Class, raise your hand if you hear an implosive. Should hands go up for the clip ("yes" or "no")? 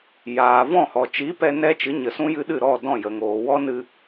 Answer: yes